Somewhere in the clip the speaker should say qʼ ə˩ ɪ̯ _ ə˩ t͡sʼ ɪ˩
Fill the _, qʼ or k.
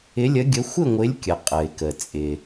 k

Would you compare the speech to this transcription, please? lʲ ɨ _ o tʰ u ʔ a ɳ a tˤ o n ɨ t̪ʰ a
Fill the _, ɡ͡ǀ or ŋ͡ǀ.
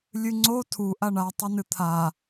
ŋ͡ǀ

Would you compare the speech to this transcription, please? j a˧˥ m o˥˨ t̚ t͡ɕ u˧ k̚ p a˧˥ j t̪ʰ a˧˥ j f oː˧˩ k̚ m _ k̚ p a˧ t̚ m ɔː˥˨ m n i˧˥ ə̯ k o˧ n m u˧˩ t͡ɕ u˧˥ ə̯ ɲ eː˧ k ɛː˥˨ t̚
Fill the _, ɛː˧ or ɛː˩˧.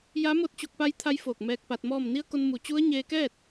ɛː˧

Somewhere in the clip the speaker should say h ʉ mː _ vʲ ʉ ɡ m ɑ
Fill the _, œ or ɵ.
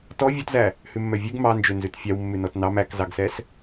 œ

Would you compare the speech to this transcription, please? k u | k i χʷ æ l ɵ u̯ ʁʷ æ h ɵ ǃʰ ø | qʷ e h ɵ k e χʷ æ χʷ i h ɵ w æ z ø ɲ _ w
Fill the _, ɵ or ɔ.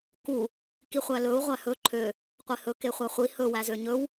ɵ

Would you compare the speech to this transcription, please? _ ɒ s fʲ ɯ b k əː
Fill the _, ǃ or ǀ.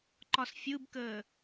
ǃ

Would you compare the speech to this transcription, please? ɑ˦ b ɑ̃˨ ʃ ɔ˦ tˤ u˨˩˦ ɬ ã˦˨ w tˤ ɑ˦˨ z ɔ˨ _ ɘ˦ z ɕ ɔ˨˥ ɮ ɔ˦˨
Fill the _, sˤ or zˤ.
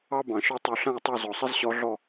sˤ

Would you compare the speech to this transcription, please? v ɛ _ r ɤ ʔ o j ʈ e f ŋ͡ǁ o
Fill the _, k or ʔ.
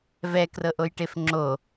k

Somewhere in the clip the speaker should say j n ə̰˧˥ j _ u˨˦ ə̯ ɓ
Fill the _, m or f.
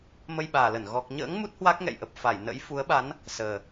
f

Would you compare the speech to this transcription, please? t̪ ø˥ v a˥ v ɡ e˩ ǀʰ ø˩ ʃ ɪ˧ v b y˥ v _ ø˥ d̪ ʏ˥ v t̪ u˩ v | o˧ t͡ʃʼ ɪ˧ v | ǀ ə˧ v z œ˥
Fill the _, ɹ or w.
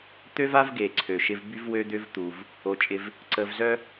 w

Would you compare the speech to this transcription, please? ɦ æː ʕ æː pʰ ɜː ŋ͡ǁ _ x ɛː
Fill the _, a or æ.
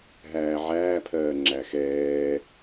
æ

